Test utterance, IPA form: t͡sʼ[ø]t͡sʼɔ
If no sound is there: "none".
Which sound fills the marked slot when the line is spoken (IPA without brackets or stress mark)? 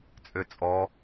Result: ø